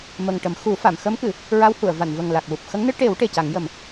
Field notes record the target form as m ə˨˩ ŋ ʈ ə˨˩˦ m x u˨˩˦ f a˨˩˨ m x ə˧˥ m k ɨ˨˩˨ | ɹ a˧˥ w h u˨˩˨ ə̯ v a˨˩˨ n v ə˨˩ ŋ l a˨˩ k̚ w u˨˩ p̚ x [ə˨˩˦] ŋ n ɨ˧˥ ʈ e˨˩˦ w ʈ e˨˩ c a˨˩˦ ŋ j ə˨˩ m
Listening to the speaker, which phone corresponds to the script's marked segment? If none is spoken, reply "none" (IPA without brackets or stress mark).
ə˧˥